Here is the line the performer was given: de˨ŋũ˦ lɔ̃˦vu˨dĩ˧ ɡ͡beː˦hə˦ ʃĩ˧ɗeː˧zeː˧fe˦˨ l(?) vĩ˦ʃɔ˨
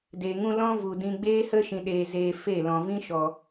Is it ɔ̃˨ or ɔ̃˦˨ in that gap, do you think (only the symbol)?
ɔ̃˨